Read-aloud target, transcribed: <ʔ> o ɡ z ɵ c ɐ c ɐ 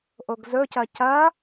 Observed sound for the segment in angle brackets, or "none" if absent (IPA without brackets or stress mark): ʔ